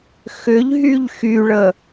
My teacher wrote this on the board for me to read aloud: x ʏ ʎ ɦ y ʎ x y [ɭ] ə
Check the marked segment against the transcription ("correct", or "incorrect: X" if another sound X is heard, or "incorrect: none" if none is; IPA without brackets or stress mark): correct